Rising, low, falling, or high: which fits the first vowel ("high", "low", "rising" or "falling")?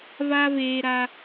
high